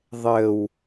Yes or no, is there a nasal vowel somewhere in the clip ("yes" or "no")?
no